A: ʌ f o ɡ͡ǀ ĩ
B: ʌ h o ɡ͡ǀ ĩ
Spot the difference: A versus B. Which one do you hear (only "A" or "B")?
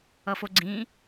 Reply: A